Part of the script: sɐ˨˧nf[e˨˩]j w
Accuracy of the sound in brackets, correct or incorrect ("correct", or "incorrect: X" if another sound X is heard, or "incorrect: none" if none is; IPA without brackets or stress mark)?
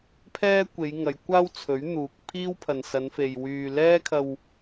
incorrect: e˨